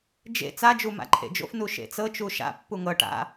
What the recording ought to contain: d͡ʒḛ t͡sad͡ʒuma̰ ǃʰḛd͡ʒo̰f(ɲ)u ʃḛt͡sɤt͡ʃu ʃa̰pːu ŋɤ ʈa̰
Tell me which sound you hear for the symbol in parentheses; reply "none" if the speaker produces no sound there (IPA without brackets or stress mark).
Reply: n